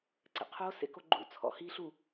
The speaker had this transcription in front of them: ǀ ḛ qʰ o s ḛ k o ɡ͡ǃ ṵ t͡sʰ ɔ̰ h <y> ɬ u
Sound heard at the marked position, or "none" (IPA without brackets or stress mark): i